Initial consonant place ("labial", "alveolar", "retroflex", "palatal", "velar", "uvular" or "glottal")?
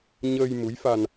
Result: palatal